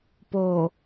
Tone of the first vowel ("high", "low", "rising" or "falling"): low